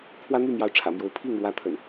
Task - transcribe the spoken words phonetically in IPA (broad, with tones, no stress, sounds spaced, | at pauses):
pʰ w ä˦ n̪ y˥˨ m j ɑ˨˦ ʊ̯ ʈ͡ʂʰ ä̰˨˩ m j o˨˦ ʊ̯ pʰ i˥˨ ŋ ɻ w ä˨˦ t̪ʰ ə̰˨˩ n